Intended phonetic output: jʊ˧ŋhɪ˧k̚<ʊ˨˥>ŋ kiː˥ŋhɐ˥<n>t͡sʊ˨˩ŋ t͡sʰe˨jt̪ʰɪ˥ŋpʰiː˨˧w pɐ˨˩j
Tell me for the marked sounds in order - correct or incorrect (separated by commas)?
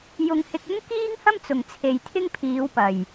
incorrect, incorrect